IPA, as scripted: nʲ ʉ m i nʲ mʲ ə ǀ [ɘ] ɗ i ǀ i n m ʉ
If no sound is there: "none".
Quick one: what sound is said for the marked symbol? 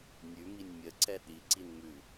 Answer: ɛ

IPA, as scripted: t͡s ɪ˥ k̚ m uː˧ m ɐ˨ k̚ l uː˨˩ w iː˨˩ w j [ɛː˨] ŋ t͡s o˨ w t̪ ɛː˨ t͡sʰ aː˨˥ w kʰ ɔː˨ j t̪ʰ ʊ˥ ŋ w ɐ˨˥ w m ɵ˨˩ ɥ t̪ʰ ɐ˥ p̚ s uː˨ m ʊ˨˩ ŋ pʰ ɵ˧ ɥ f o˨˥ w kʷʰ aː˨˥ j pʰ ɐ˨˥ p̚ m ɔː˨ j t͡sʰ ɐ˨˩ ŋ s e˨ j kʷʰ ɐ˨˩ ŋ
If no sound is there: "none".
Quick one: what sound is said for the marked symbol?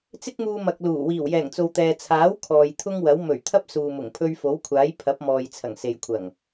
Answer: ɛː˨˩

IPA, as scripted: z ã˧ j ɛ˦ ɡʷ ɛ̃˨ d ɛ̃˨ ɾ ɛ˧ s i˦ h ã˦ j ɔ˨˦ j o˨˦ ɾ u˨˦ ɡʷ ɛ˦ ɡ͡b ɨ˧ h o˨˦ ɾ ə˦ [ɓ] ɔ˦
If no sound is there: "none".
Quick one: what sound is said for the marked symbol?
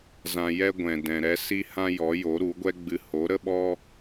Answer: ɓ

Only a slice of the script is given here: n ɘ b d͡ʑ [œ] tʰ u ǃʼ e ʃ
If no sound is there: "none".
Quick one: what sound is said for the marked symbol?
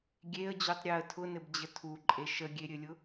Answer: ə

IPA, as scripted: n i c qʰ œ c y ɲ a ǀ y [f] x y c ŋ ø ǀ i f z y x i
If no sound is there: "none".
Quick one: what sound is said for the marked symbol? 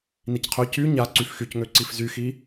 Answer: f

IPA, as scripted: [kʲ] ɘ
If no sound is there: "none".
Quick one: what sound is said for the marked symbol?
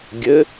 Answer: ɡʲ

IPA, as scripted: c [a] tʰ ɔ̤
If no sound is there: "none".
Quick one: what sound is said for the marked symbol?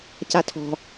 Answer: a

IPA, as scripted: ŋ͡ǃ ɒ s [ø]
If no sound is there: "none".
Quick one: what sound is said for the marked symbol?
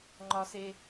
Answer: e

